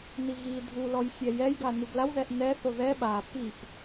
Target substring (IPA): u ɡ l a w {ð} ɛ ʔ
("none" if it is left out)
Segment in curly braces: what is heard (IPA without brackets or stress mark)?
ð